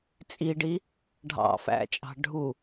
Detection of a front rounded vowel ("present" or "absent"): absent